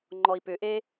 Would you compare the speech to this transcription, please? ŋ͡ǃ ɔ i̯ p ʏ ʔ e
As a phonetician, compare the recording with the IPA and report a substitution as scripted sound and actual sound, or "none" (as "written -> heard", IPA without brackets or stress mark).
none